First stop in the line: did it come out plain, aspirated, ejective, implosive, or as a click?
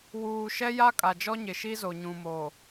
ejective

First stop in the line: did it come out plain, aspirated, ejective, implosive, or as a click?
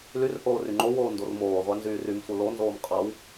click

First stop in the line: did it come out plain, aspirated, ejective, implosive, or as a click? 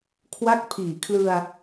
aspirated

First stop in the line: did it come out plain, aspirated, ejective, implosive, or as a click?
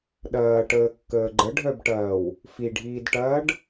implosive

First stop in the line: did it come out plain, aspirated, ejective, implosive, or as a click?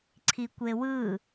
click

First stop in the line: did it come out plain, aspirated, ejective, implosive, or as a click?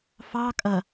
ejective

